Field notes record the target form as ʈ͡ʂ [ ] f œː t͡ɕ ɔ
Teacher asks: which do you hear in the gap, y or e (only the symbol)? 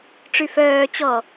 y